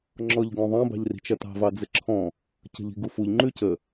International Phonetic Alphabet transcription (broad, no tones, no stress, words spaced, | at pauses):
ŋ͡ǁɔʎɡɔ̃ðˤɐ̃ bɑ̤ʎri̤t͡ʃɐtɑ̤ vɑd͡zɘǁʰɔ̃ | cə̤ʎi̤ɡufuʎ ŋ͡ǃʉcə